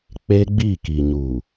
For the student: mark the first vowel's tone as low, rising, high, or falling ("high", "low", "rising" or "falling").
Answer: high